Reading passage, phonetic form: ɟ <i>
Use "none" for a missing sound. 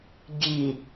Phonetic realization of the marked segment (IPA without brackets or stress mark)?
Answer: i